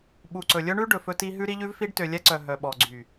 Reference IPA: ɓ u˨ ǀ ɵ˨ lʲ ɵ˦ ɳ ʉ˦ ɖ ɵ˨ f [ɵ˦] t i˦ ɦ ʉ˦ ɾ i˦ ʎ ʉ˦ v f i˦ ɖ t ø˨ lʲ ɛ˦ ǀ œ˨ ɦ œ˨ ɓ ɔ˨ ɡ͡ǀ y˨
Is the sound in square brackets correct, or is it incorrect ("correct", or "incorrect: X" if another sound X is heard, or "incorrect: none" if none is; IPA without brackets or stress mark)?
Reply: correct